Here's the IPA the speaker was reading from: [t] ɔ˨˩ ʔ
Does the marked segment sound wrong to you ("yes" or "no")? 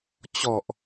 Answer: yes